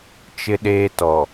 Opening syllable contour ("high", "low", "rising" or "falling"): high